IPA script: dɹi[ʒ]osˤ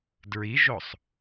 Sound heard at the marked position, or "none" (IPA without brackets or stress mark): ʒ